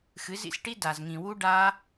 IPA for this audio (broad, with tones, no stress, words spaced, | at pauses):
xɨ˨˦zḭ˨sʈi˦ da˨zŋĩ˨wu˦ ɖa˦